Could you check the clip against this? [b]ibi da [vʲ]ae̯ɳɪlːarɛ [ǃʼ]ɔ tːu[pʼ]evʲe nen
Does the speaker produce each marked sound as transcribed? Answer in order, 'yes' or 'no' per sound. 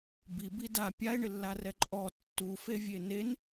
yes, no, yes, no

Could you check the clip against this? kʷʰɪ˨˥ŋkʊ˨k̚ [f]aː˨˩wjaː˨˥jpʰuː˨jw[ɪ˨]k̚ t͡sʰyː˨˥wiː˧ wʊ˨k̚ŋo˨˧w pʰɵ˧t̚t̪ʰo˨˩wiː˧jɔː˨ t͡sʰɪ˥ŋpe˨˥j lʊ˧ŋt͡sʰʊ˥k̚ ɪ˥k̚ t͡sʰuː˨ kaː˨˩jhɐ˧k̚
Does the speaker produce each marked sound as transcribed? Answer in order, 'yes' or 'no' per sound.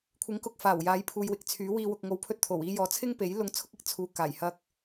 yes, yes

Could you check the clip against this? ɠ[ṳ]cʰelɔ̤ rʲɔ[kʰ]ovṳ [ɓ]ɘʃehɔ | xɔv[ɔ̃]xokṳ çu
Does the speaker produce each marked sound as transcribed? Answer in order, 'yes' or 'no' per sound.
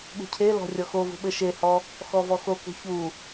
yes, no, yes, no

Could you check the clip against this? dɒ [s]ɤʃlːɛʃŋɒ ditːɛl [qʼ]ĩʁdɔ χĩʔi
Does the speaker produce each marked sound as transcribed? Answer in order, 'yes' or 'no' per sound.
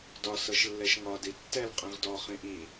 yes, yes

